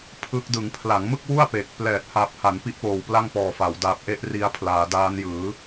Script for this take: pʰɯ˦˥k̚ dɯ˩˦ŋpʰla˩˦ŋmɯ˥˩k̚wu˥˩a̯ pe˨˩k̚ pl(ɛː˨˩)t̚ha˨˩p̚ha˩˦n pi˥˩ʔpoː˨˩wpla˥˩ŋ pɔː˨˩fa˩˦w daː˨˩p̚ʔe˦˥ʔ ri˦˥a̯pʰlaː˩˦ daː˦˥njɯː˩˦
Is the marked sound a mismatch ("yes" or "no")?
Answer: no